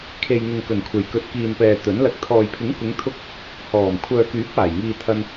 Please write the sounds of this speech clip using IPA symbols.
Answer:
kʰ e˨ j ŋ ʊ˨ ŋ k ɵ˨˩ n kʷʰ e˨˩ j k ɵ˨ t̚ k iː˨ n p ɛː˨ t̪ ɵ˨˥ n l ɐ˧ k̚ t̪ʰ ɔː˨ j pʰ ɪ˨˥ ŋ k ʊ˨˧ ŋ t̪ʰ ʊ˧ k̚ | h ɔː˨˩ m kʷʰ œː˨ k yː˨˥ p̚ aː˨˩ j ŋ iː˧ t̪ʰ ɐ˧ n

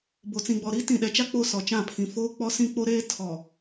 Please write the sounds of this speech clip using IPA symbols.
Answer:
b o˨ t͡s ĩ˨ ɡ͡b ɔ˨ ɾ i˦ t ĩ˨ ɗ ɛ˨ t͡ʃ a˦ k͡p o˦ s ɔ˨ t͡ʃ ã˦˨ pʰ ĩ˨ f oː˦ k͡p ɔ˦ s ĩ˦ k͡p o˦ ɾ eː˦ tʰ ɔ˨

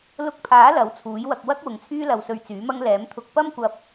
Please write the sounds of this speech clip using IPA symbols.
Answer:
l ʊ˧ k̚ pʰ aː˨˥ l ɐ˨˥ w t͡sʰ uː˨˥ j w ɐ˧ k̚ w ɐ˥ k̚ w ʊ˨ ŋ t͡sʰ yː˥ l ɐ˧ w s ɵ˧ ɥ t͡s yː˨˥ m ɐ˥ ŋ l ɛː˨˥ m t̪ʰ ʊ˧ k̚ p ɐ˥ m kʷ ɐ˧ p̚

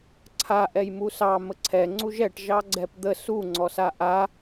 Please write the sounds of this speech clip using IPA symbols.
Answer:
ǀʰ a ʔ ɛ j m u s ɑ m ə ǀʰ ɛ ŋ͡ǀ u ʒ ɛ ʈ ʒ ɑ ɡ͡ǀ ɛ p d̪ ə s u ŋ͡ǀ ɔ s a ʔ a

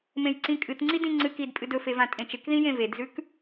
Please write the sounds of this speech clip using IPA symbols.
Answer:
m ẽ j ǀ ĩ kʼ ɨ t ŋ͡ǀ i d ĩ ŋ͡ǀ ɨ k i d pʼ ɨ d ɵ f e v ã tʼ ẽ t͡ʃ e k ð ĩ j ẽ v e d z ʉ k

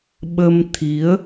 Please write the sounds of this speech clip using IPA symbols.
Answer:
ɓ ə˧ m t̪ʰ i˨˦ ə̯

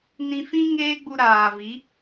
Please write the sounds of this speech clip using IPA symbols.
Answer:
n ĩ˧ f ĩ˦ ŋ eː˦ ɡ͡b u˧ ɾ aː˨ v i˨˦

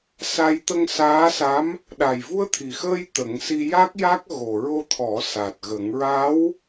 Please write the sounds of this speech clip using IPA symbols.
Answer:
s a˧ j t̪ ə˧ ŋ s aː˧˥ s a˧˥ m | ɗ a˨˩ j v u˧ ə̯ t̪ʰ i˨˩ x əː˧ j t̪ ə˨˩˦ ŋ s i˧ j a˦˥ k̚ j a˦˥ k̚ ɣ o˨˩ ɹ o˧ t̪ʰ ɔ˨˩˦ s a˨˩ t̚ ɣ ə˨˩˦ ŋ ɹ a˧˥ w

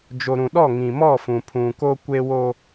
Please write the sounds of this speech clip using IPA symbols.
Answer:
d͡ʒ o˨ ɾ ũ˨ ɗ ɔ˦˨ ŋ ĩ˨ m ɔ˦˨ f ũ˨ pʰ ũ˨ k o˦ kʷ e˦ w o˦

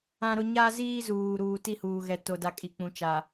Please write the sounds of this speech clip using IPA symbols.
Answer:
ã˦ ɾ ʊ˦ ɲ a˦ z iː˦ z uː˨ ɾ uː˨ t i˦˨ h uː˨ ɣ ɛ˦ t o˦ d a˦ kʼ i˨ k͡p ũ˨˦ t͡ʃ a˨

